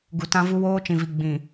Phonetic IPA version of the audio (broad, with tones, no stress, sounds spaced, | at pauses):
ɡ u˨ t ã˦ v u˦ w oː˦ t͡ʃ ĩ˨ v i˨ ɡ͡b ĩ˨